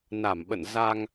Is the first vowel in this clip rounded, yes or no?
no